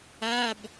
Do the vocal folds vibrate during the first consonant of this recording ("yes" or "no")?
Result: yes